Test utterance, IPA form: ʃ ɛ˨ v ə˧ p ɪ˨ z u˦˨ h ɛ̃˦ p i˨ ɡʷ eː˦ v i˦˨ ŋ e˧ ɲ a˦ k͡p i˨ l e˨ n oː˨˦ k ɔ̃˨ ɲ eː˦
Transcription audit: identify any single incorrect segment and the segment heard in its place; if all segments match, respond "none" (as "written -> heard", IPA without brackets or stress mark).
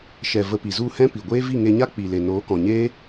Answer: ɪ˨ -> i˨